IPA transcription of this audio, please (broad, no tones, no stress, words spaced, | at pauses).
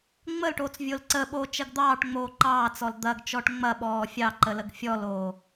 ŋ͡məlʈoːt͡svʲol ǀəɓoːt͡ʃɐɡ d̪ɑːʈŋ͡moː ǃɑːt͡sɔl d̪ɐɡt͡ʃɔʈ ŋ͡mɐɓɔː fʲɑǃələɡ fʲɔloː